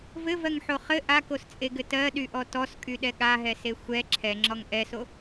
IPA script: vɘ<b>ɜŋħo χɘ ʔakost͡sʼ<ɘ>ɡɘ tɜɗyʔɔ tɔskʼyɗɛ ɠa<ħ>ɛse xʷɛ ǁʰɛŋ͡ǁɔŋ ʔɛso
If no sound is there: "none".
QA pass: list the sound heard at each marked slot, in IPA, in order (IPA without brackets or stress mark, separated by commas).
v, e, ɦ